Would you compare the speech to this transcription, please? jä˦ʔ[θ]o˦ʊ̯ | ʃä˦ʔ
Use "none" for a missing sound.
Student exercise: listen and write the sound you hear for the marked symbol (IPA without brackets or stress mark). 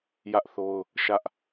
θ